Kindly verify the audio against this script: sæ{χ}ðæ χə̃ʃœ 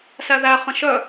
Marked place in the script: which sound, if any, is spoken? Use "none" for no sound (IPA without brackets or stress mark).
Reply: none